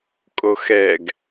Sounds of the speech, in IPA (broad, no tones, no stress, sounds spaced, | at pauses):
kʼ o x ɛ ɡ